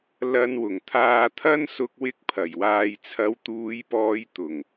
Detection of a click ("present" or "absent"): absent